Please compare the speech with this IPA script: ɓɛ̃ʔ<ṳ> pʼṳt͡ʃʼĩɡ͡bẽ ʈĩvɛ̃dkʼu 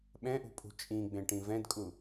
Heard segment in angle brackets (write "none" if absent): ṳ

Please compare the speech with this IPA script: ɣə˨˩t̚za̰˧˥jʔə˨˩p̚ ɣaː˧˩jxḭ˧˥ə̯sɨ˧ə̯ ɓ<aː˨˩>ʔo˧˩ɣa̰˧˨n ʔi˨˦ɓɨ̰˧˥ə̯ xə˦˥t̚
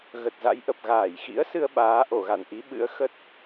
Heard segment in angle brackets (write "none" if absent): aː˨˦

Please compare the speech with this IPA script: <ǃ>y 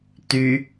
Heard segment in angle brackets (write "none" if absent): t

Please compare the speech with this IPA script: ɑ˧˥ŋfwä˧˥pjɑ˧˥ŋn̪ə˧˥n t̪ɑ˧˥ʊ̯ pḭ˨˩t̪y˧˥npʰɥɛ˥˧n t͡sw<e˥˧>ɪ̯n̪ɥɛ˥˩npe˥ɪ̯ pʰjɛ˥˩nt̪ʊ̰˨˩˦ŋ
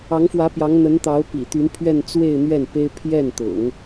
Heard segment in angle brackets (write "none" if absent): e˥˧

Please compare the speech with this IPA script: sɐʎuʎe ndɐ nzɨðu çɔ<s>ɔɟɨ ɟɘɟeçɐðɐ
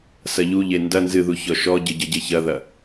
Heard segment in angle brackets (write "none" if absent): ʃ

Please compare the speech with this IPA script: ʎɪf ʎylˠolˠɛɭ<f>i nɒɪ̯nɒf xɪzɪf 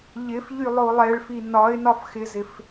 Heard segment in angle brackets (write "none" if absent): f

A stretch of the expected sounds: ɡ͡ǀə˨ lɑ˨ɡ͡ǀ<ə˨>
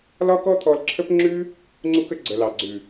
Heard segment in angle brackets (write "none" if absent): ʉ˨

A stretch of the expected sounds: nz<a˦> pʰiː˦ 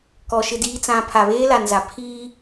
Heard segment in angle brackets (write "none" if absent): a˨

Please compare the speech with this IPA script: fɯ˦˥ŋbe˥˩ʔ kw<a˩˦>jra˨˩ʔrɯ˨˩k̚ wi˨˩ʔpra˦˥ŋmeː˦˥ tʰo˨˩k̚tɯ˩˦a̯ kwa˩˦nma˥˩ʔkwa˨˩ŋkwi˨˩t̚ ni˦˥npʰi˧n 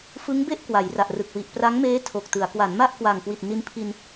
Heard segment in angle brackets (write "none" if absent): a˩˦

